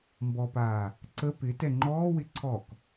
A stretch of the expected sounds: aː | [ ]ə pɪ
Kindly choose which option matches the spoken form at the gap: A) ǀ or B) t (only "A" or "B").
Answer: A